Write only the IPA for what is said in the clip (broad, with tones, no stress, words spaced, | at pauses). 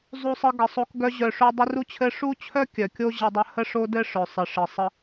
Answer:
zˤu˧sˤɘ˧ɡə˨sˤo˧k ɡœ˧ʑœ˨ʂo˧ dˤɘ˦ ru˦t͡ɕʰɘ˦ ʂu˦t͡ɕʰœ˦ kʲœ˨kʲo˦ ʑɘ˧dˤə˧ hə˦ʂo˦dɘ˦ ʂœ˨sˤɘ˨ ʂɘ˨sˤə˧